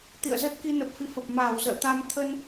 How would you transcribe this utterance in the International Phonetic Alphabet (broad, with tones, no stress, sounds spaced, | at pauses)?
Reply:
t̪ ḭ˧˨ ə̯ z ə˦˥ t̚ k i˧ n ə˨˩ p̚ f ḭ˧˨ f ə˨˩ p̚ m aː˧˩ w z ə̰ː˧˨ t̪ a˧ m t̪ʰ ə˧ n